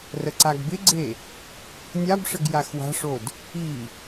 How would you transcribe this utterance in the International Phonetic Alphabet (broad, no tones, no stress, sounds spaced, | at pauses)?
r ə ǀ a ɡ b ɪ ɡ͡ǀ e | nʲ a b ʂ ə ɡ j a x w a̤ ʂ o d | i